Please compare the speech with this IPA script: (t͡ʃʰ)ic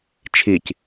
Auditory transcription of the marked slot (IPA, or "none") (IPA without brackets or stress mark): t͡ʃʰ